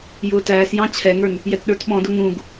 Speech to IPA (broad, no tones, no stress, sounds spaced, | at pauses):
j ʊː t æː s j ɑ̃ t͡ɕʰ ɛ ŋ ə˞ n | j ɛ t ɗ ə˞ t ɓ ɔ̃ d ʊ ŋ ũ ɡ